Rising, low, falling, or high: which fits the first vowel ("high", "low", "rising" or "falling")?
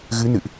rising